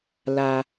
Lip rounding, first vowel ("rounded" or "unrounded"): unrounded